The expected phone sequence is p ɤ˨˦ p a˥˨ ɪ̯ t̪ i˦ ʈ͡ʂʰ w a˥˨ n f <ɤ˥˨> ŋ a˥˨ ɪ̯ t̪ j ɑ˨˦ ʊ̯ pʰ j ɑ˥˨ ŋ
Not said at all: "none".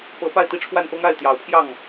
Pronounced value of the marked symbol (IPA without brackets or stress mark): ɤ˦